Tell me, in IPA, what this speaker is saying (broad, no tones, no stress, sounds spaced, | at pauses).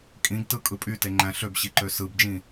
kʼ ĩ ɡ t ɯ kʼ ɯ pʼ y t e ŋ͡ǃ æ̃ ɬ ø b ɕ i ǃ ø s ɯ b d͡ʒ ĩ